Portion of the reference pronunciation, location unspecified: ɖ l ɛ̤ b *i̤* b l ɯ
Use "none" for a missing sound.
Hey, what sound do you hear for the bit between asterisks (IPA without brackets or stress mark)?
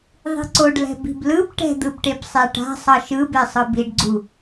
i̤